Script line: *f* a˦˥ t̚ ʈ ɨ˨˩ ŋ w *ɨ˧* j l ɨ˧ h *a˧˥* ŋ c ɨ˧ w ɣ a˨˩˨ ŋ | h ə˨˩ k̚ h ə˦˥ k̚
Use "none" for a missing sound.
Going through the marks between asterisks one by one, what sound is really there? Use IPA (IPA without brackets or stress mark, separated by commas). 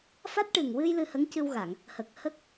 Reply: f, ɨ˧, ə˧˥